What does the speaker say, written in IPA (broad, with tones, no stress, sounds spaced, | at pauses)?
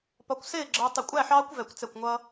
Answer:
p ɒ˧ kʷ s ɪː˥˨ ɡ͡ǁ ʌː˧ tˤ ɪ˧˩ kʷʼ æ˥˨ ħ ɑː˦˥ kʷ v ɛ˧˩˧ kʷ t͡s ɛ˧˩ kʷ ŋʷ ʌː˧